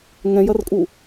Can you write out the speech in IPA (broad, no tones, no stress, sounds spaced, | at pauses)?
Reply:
ŋ ɛ̃ j ɐ r kʼ u